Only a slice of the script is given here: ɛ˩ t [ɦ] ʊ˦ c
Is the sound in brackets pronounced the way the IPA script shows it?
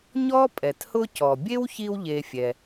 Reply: no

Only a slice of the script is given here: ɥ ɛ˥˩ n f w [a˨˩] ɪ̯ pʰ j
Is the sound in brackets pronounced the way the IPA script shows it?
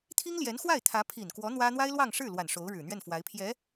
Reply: no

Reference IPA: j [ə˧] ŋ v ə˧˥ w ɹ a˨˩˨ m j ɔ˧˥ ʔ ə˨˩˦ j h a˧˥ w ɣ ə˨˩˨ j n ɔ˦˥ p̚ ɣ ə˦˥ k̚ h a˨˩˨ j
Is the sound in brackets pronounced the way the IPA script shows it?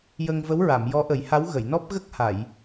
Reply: yes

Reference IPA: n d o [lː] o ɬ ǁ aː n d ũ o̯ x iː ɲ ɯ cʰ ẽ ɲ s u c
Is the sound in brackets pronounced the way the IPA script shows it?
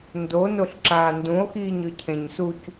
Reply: no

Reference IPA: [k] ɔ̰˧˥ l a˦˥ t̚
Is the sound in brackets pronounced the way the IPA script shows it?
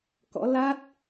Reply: yes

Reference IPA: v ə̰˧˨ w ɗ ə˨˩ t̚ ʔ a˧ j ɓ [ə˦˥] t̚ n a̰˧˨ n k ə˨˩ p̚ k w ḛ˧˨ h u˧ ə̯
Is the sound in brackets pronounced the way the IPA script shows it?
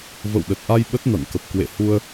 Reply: yes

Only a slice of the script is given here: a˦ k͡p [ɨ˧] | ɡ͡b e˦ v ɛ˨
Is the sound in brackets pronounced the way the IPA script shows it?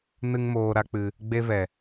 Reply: yes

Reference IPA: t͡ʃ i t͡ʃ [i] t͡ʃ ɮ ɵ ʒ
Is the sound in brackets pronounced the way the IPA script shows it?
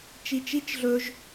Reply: yes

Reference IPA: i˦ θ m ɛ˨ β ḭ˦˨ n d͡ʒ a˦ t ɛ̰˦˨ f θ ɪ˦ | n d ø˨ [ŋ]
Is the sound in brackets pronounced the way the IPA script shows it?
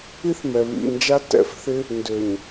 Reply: no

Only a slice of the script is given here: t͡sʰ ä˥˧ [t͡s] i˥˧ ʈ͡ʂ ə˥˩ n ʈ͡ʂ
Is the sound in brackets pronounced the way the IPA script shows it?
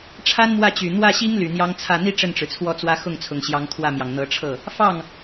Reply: no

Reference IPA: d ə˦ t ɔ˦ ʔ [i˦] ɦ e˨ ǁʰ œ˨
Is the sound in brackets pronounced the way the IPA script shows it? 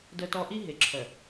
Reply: yes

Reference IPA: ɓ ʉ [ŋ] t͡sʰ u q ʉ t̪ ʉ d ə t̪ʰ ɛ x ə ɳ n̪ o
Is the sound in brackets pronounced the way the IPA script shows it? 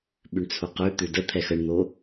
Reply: no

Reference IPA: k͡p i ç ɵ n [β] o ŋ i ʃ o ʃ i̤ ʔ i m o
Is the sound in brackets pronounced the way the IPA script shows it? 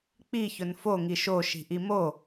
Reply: no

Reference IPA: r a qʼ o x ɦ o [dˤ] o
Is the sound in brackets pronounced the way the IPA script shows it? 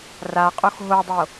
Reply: yes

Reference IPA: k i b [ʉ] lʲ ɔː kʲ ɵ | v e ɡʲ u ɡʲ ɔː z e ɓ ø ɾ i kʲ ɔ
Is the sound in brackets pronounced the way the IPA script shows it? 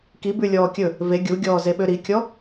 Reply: yes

